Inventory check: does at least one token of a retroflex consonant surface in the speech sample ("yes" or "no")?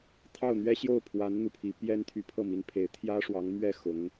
yes